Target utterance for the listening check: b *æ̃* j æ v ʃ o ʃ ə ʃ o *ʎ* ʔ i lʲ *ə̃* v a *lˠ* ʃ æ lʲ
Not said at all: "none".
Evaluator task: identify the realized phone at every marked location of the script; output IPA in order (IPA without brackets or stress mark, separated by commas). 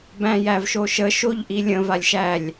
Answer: æ̃, ʎ, ə̃, lʲ